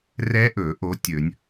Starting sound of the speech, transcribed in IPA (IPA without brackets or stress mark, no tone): r